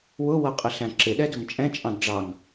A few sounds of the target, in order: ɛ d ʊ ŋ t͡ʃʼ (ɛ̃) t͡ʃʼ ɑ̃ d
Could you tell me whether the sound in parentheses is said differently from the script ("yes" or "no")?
no